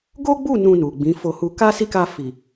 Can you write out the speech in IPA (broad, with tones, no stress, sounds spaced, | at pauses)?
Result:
ɡ o˦ ɡ͡b u˦˨ n ũ˧ n u˨ ɡ͡b ĩ˨˦ f o˧ h u˧ k a˦ s i˦˨ k a˧ f i˨